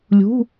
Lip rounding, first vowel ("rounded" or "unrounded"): rounded